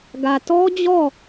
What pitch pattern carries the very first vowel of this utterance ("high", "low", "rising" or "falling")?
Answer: low